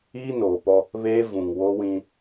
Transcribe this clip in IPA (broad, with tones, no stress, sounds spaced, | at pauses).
iː˦ n oː˨ p ɔ˦ | β eː˦ v ũ˨ ŋ w o˦ w ĩ˦